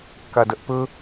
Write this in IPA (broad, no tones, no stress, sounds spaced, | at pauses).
k a d ɐ ʔ p ɵ